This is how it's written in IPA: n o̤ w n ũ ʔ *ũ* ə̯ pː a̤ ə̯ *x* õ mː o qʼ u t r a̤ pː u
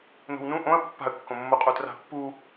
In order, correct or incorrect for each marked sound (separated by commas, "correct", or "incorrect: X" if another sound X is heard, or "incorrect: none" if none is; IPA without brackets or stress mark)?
incorrect: õ, incorrect: kː